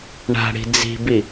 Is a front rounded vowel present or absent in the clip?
absent